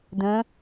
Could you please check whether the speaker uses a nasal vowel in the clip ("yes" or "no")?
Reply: yes